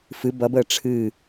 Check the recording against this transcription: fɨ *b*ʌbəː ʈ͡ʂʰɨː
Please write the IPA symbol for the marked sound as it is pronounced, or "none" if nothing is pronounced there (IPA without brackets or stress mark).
b